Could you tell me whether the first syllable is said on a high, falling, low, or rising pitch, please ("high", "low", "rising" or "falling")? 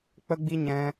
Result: high